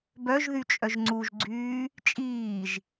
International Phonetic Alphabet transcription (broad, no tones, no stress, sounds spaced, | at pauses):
b œ ʒ ð y t͡ʃʼ œ ʒ ŋ͡ǀ u ʒ ɡ͡ǀ yː | t͡ʃʼ iː ʒ